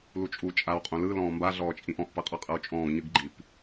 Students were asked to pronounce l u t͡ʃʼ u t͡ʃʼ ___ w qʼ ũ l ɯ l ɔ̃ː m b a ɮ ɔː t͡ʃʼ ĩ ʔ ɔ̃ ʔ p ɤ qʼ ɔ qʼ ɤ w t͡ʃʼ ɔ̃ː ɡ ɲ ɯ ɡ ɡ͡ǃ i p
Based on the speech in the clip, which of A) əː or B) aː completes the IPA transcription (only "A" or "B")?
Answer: B